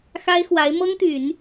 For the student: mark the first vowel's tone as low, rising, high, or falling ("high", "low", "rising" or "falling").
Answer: high